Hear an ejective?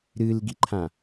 no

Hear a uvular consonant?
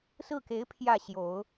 no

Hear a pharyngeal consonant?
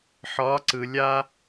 yes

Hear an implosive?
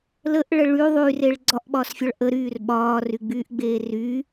yes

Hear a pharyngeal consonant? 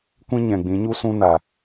no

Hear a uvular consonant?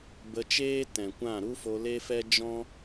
no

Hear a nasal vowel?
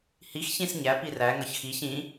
yes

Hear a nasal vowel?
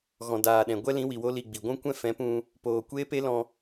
yes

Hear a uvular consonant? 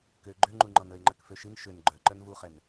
yes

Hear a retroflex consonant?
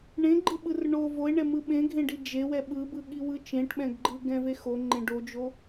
yes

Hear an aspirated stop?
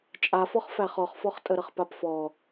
no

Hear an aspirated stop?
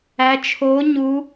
yes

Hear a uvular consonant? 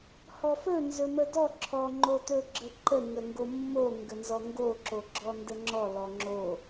no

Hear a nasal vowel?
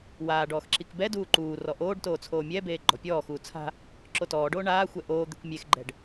no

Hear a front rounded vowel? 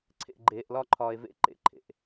no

